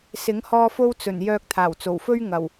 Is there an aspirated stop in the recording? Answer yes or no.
yes